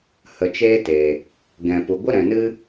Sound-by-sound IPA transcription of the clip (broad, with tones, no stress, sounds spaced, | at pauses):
h ə˨ t͡ʃ eː˦ t e˨ | ɡ ɛ̃˨ p u˨ ɡʷ ə˦ ɾ ɛ̃˨ n ɨ˦